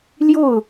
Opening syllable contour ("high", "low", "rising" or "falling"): falling